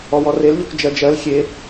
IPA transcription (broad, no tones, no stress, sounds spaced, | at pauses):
ɔ w ɔ r e l ʎ o k d͡ʒ ɜ d͡ʒ ɜ l xʲ e